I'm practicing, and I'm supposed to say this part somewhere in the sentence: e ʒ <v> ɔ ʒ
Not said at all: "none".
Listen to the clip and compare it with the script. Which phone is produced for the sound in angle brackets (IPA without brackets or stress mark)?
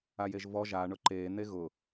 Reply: v